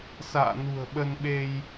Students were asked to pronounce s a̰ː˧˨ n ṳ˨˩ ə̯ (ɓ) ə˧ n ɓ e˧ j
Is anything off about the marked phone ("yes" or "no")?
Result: no